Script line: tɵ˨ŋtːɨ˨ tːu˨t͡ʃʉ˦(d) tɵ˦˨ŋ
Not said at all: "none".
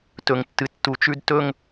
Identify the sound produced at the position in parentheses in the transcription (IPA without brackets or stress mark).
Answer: d